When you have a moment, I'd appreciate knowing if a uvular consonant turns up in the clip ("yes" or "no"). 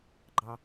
no